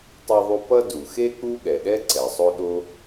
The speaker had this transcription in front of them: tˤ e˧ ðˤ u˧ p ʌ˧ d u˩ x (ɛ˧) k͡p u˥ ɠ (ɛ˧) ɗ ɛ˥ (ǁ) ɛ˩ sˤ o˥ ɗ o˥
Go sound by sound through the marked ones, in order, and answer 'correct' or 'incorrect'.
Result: incorrect, incorrect, incorrect

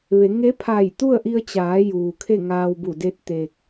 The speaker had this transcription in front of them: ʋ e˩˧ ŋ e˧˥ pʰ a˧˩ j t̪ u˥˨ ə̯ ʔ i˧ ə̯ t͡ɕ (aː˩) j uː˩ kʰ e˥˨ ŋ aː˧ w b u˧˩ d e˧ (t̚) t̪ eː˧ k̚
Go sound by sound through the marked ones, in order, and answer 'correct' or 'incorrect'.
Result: incorrect, correct

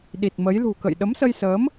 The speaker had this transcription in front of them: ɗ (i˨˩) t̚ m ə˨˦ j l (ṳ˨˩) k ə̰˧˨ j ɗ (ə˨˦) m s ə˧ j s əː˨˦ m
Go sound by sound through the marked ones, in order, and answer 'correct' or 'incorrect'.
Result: correct, correct, correct

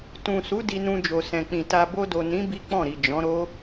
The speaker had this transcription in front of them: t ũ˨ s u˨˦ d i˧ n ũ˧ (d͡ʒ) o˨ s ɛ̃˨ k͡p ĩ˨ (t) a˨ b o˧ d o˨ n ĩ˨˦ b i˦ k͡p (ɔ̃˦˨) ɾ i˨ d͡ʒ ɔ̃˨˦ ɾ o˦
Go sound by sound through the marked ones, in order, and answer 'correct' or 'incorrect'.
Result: correct, correct, correct

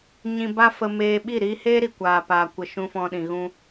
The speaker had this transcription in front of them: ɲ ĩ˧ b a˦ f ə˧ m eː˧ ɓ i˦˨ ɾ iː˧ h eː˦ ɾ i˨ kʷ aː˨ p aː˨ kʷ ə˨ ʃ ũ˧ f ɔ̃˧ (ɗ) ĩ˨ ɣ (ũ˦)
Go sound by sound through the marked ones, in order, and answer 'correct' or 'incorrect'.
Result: correct, correct

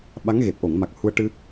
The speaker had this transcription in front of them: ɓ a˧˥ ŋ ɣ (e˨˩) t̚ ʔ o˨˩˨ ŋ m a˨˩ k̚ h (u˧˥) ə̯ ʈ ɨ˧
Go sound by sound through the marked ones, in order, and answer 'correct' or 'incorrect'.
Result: correct, incorrect

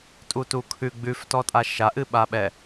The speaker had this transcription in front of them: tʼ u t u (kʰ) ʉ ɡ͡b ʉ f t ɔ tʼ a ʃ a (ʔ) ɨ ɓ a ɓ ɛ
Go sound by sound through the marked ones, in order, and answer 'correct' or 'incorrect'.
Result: correct, correct

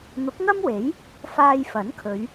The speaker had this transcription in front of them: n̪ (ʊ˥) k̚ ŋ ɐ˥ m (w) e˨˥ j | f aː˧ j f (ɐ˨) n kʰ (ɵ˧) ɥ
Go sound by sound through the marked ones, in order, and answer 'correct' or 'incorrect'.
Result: incorrect, correct, incorrect, incorrect

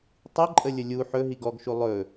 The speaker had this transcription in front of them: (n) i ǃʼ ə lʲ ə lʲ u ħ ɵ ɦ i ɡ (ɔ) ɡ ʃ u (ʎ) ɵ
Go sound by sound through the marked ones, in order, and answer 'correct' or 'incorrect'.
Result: incorrect, correct, incorrect

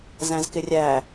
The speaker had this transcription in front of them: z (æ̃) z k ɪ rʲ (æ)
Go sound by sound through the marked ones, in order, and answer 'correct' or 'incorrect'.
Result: correct, correct

